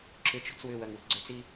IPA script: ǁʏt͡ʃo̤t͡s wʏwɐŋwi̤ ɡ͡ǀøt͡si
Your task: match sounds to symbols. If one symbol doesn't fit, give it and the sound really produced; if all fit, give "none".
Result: none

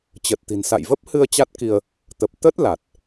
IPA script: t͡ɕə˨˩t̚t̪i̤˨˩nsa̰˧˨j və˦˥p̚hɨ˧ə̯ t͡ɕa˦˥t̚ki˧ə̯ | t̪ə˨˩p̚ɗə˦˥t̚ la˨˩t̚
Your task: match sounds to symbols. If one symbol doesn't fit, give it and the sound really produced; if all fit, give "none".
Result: ɗ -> t̪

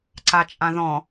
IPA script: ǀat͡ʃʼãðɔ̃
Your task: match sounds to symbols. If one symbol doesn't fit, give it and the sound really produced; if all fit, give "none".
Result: none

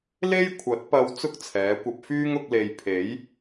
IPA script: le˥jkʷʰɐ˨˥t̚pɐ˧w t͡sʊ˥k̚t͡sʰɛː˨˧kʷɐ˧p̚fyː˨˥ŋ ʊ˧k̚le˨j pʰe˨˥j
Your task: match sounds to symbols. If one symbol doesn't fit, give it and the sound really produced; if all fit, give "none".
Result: yː˨˥ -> yː˥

